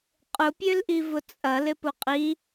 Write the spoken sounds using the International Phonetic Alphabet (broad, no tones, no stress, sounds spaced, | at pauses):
qʼ ʊ pʲ ø l ʔ i v ʊ t͡sʼ ɐ l ɪ p ʊ qʼ i